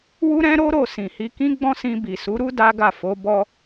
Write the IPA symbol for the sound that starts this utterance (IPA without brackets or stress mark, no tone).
w